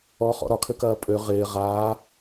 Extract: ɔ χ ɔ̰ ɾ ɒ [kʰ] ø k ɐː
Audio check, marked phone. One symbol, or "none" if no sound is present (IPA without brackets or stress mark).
kʰ